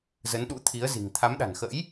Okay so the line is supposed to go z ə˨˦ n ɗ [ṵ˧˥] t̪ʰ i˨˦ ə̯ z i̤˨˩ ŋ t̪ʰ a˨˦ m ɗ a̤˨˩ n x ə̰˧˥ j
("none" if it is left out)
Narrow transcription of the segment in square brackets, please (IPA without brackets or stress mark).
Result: ṵ˧˥